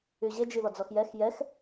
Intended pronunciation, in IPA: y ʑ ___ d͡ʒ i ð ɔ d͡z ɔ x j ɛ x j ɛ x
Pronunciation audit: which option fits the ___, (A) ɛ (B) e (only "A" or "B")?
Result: B